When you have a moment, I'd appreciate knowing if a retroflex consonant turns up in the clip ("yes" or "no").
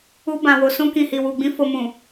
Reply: no